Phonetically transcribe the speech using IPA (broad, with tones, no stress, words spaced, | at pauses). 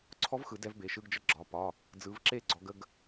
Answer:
ǀʰɔ˦˥vxɯ˨˩˦ dɛ˦˥vbe˩˧˩ʃɯ˧˥˧ɡd͡ʒə˦˥ ɡ͡ǁɒ˩˧˩ pɒ˩˧˩ | d͡zɯ˨˦vǁe˥˨ɡ͡ǀɔ˨˦ ɡə˧˥˧ɡ